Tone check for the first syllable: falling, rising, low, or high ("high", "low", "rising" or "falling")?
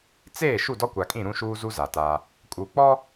falling